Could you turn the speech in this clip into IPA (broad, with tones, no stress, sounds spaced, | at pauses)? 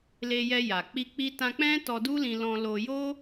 l e˧ j ɛ˧ j a˨ k͡p i˧ k͡p i˧ t ã˧ k͡p ɛ̃˦ t ɔ˧ d u˦ l ĩ˧ l ɔ̃˧ l o˧ j o˦